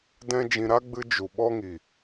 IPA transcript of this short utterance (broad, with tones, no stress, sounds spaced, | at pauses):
d ɛ̃˦ d͡ʒ ĩ˧ ɾ a˦ ɡ͡b ɨ˧ d͡ʒ u˨ ɓ ɔ˦ ŋ i˨